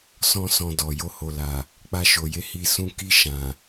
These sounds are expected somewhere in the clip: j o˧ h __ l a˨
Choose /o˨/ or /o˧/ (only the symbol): o˨